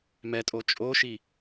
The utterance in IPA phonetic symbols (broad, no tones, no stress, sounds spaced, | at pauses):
m ɛ tʼ o t͡ʃʼ o ʃ i